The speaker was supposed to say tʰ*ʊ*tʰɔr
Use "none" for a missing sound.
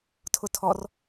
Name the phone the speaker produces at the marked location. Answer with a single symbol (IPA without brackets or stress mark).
ʊ